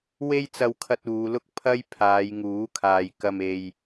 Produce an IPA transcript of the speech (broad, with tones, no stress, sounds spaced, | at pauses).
w e˥ j t͡s ɐ˧ w kʰ ɐ˧ t̚ uː˨˧ l ʊ˥ k̚ pʰ ɐ˥ j pʰ aː˨˧ j ŋ uː˨˥ kʰ aː˨ j k ɐ˧ m e˧ j